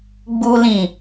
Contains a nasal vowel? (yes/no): yes